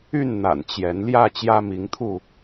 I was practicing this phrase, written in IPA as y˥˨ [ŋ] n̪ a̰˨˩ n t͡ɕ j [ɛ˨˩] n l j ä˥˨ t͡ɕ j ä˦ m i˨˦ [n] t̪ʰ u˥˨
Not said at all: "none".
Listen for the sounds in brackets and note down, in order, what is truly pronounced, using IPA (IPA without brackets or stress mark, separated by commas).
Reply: n, ɛ˨˦, ŋ